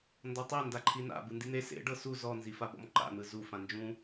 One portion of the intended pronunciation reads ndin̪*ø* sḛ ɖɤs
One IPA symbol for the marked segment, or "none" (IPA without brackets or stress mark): e